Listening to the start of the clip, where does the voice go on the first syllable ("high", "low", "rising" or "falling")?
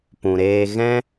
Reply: low